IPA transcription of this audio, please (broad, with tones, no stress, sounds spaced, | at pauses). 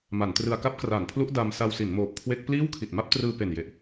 m a˩˦ n t r ɯ˧ a̯ k a˦˥ p̚ k r aː˩˦ n pʰ l u˦˥ ʔ d a˧ m s a˧ w s i˩˦ n m oː˨˩ p̚ kʰ w e˦˥ k̚ p l iː˥˩ w kʰ i˨˩ t̚ m a˥˩ p̚ t r ɯː˧ p e˨˩ n j e˨˩ ʔ